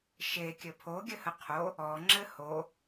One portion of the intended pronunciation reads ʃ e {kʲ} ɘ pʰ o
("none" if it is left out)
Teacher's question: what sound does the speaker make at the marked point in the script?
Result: kʲ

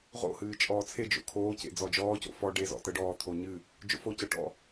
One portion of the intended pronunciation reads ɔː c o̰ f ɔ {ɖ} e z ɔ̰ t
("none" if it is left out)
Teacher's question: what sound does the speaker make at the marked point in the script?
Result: ɖ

